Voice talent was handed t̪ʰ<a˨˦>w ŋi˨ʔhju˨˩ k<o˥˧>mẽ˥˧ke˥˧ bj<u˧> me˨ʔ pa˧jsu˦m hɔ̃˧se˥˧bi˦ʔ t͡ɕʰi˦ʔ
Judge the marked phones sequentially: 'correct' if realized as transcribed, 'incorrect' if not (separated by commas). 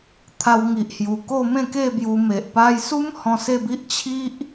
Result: incorrect, correct, correct